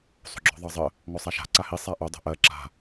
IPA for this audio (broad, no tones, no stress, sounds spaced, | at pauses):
sˤ o̤ ɡ͡ǁ ɔ̤ ðˤ ɑ zˤ ə | ŋ ɔ sˤ a ʃ a̤ ǀ a h i sˤ a ʔ o dˤ o̤ ʔ ɜ ǁ a̤